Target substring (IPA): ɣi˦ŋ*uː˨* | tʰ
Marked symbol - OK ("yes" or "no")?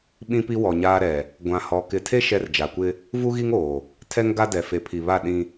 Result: no